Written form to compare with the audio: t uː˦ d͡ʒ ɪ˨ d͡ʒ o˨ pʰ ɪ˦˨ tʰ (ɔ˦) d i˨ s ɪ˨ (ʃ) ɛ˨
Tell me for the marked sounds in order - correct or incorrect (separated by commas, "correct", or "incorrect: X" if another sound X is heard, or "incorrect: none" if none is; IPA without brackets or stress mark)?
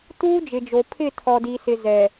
incorrect: ɔ˨, incorrect: z